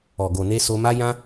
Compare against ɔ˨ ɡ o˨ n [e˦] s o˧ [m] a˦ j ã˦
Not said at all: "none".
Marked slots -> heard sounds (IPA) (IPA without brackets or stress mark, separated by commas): e˧, m